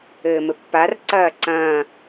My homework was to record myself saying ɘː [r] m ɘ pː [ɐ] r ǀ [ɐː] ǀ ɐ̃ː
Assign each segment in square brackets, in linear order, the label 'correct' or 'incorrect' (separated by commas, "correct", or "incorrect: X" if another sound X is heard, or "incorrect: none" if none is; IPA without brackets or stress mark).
incorrect: none, incorrect: a, correct